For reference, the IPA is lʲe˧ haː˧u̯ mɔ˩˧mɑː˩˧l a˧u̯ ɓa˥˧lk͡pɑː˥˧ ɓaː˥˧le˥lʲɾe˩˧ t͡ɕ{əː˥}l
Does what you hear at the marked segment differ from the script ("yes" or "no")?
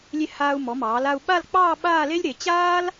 yes